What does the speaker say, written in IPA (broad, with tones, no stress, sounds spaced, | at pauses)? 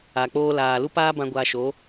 a˨ k͡p oː˧ l aː˨ l u˦ p aː˦ b ã˧ ɡʷ a˧ ʃ o˨˦